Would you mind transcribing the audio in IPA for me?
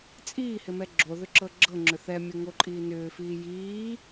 t͡sʼ iː h ɪ m ɛ ɡ͡ǁ o ð ʏ ǁ ɤ ɡ͡ǁ ɤ ŋ͡ǁ ʏ θ ɛ mʲ o ŋ o ǃʼ iː n ʏː f iː j iː

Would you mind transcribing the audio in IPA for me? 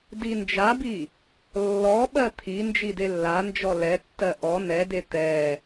d i n d͡ʒ a b i | lː ɔ ɓ ɜ t̪ʰ i n d͡ʒ i d e lː a n d͡ʒ ɔ l ɛ tː ɜ ʔ ɔ n ɛ d e t̪ ɛ

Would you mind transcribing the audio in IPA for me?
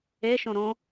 e ʃ õ ɾ õ

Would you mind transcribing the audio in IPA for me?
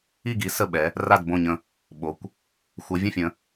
i˦˨ ɡ i˨˦ s ə˦˨ ɓ ɛ˨˦ | r a˦˨ d b õ˦˨ ɲ ə̃˦˨ | ɓ o˨˦ kʷ | xʷ ə˨˦ vʲ ə̃˦˨ fʲ ə̃˨˦

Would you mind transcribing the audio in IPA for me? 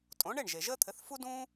tʼ õ˩˥ ɳ e˥˩ ɳ ʒ e˩ ʒ əː˥ t̪ʰ ɘ˩˥ θ f u˥ d ũː˥

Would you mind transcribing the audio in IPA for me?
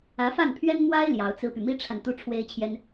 ä˧˥ f a˥˩ n pʰ ɥ ɛ˥ n m w a˥ ɪ̯ l j ɑ˧˥ ʊ̯ t͡s ɹ̩˥ p y˨ m i˥ ʈ͡ʂʰ a˨ n t̪ u˥ ʈ͡ʂʰ w e˥ ɪ̯ t͡ɕʰ j ɛ˥ n

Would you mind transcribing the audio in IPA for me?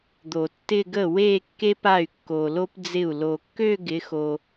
d̪ o˨˩˦ tː ɪ˥˧ ɡ ə˥˩ w e˥˧ kː e˥ p a˥˩ y̯ kː o˨ l o˥ p d͡z ɪ˥˩ u̯ l o˨ kː ø˥˧ ɡ ɪ˨˦ x o˨

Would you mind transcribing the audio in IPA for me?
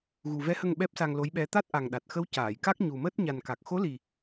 ɣ u˨˩ v ɛ˧˥ h ə˧ ŋ ɓ ɛ˦˥ p̚ s a˧ ŋ l o˧˥ j ɓ ɛ˧˥ t̪ a˦˥ t̚ ʔ a˨˩ ŋ ɗ a˨˩ t̚ x ə˧˥ w c aː˨˩˨ j k a˦˥ k̚ ɲ u˨˩ m əː˦˥ t̚ ɲ a˨˩ n k a˨˩ k̚ x o˧˥ l i˨˩

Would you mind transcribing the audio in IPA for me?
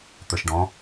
t̪ ə˞ ʃ ɖ ɔ̃

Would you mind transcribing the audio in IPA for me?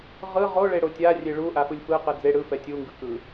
ʁ ɯ ʁ o ɭ e ɽ o tʲ a rʲ e ɭ u ʔ a f ɯ lʲ f ɯ q ɯ d͡z e ɽ ɯ f ɛ tʲ u ŋ ɡ ɯ k ɯ

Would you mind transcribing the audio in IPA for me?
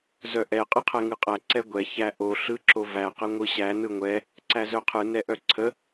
z œ ʔ ɛ qʼ ɯ qʰ ɛ ŋ ɯ qʼ æ ǀ ɛ ɡʷ ɛ ç æ ʔ o ɬ ɯ ǁ o v æ q ɛ ŋʷ ɯ ɕ æ n ɯ ŋʷ ɛ | ǀ æ z œ qʰ ɯ n ɛ ʔ œ ǀʰ ə

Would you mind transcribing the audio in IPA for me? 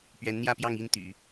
p ɥ ɛ˧˥ n n̪ j ä˥˧ p j ɑ˥˧ ŋ i˥˩ n t̪ y̰˨˩˦

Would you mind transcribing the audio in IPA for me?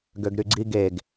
ɡ ø ɡ ɾ y ɡ͡ǀ i ɡ e ɡ

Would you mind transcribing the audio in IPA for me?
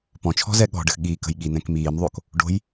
p ɔ̃ t͡ʃʰ ɔ̤ z ɛ ɠ ɔ̤ ɖ ə x ɠ iː k ə̤ j ɠ i n ɛ̃ k m iː m ðˤ o k | ɖ o̤ j

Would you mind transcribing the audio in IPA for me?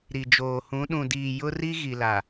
ɾ i˨ d͡ʒ oː˨ h ũ˨˦ ɗ ũ˨ d iː˨ j ʊ˦ r i˦ ɣ i˨ l a˨

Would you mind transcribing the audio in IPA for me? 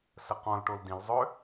s ə q ɔ̃ l ʈ o l d ĩ l zˤ ø

